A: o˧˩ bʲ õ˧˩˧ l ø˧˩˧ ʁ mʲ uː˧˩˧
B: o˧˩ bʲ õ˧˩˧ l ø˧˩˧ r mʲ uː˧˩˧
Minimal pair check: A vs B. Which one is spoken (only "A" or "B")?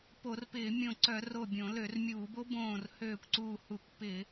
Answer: B